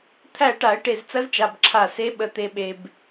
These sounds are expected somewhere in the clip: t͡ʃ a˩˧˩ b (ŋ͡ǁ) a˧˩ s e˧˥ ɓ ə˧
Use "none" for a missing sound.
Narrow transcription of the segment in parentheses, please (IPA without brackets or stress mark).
ǁʰ